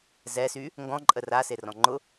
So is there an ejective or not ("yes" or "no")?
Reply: yes